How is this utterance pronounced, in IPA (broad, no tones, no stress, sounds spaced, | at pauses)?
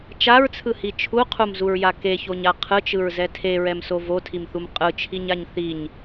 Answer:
t͡ʃ a ɹ t͡sʰ ɯ h i t͡ʃʰ u qʰ u m z u ɹ j a k e ç o ɲ a qʰ ɯ t͡ʃ ɯ ɹ z ɛ tʰ e ɹ ɛ m s o v o tʰ i m θ u m qʼ ɯ t͡ʃʰ i ɲ a ɲ θ i ɲ